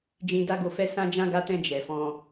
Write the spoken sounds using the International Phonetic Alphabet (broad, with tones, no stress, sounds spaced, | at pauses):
d͡ʒ ĩ˧ d a˦ ɡ o˧ f ɛ˦ s ã˧ d͡ʒ ã˧ ɡ a˧ t ɛ̃˧ d͡ʒ ɛ˨ f ɔ̃˧